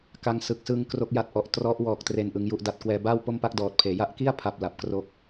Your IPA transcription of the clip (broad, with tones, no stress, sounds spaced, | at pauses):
k a˧ ŋ s ɯ˨˩ k̚ s ɯ˧ ŋ k r o˦˥ k̚ j a˦˥ t̚ ʔ ɔ˨˩ ʔ t r ɔ˦˥ ʔ w ɔː˨˩ k̚ t r e˨˩ n ʔ ɯ˧ ŋ j u˥˩ ʔ d a˦˥ t̚ k w ɛː˧ b aː˥˩ w p o˥˩ m p a˥˩ k̚ d ɔː˨˩ t̚ pʰ eː˩˦ j a˦˥ ʔ k i˥˩ a̯ pʰ a˨˩ p̚ l a˨˩ p̚ k r o˦˥ k̚